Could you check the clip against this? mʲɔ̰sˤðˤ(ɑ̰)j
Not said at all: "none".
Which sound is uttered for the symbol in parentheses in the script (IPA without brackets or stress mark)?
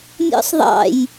ɑ̰